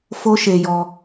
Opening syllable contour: high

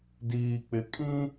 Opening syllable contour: low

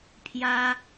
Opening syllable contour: high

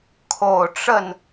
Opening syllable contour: low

